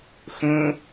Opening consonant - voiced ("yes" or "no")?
no